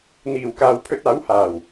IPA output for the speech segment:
n̪iː˨˩wkaː˨w pʰɵ˧t̚aː˨˥whaː˨˩w

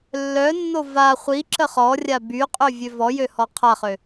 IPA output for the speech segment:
lːœnːo va χʷi ǁəχɔrʲa byqʼø vʲøvɔjø hɔqʰaχø

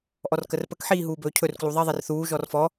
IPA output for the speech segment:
ʔɔrkərpək ħiːɦuːbɵːcʰɵr kluðˤe ðˤerθuː ʒɔrfɔ

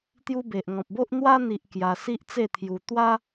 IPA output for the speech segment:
t̪ju˧be˨ʔŋɔ̃˨p̚bo˦ʔ n̪wa˧n̪i˨ʔ kja˧si˦ʔt͡se˥˧t̪ʰju˧ t̪wa˦

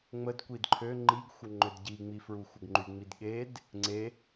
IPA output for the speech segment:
ŋ͡məd kʷidǃʰø ŋ͡ǃiɡxʷəŋ͡ǃød ɟiŋ͡mi fɹuxʷəɡŋ͡ǃy ŋ͡midɠed | ŋ͡ǀe

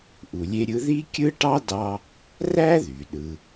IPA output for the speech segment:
ʔu˨lʲe˥ɾʲɯ˥ ði˥kʲɯ˥ʈɑ˥ dɑ˥ | ræ˥ðy˩ɗɯ˨

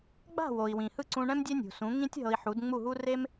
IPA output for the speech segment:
ɡ͡ba̤˥˩wo˩i̯wĩ˩ hɯ˥˩ǀũ˧ɳɛ̃˥m dʲɛ˥nʲṳ˩sũ˩˥ ŋĩ˥tʲ ɦɤ˧i̯ħu˩˥d ŋ͡mu˥˩ɦu˥ re˥m

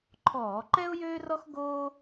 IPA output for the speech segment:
ǃʰɔː˧˩˧ǃɛ˥ʊ̯ jøː˥rɔ˥x ɡoː˥

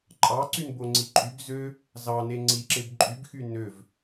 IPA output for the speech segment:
ǃʼɑǀynboŋ͡ǀi ǃʼyb zø | zɑne ŋ͡ǀiǁeb ǃʼybxy nøv

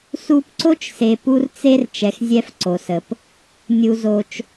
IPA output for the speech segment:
su˦pǀo˥t͡ʃse˨ pu˦rt͡se˦r t͡ʃɛ˩xzʲɛ˨f ǀo˩sə˩p | nʲu˨zo˨t͡ʃ

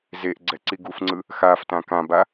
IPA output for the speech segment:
zeʔɡ͡ǀɛǀi ɡufŋ͡ǀɯ | xaftã kãba

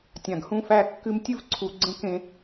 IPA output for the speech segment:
tʲã˨ɡhũ˦fæ˦kːɨ˦m tʲɨ˦vǀʰu˨ ɡ͡ǀə̃˦kẽ˦

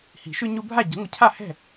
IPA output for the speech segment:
hi̤˨˩˦ʃʏ˦ɲu˦bʱa˥˨ ɟə̤˨˦ŋʷə˨˦cʰa˥˨hɛ̤˥˨

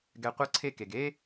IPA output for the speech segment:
ɡɛ˧qʷɤ˦ǀʰe˦ke˨ɡ e˧

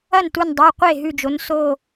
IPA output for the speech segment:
ɐ˥˩ntu˧˩ndˤʉ˩˧˩ qʷe˥˩ɦʉ˧˩d͡ʒo˩˥n so˧˩

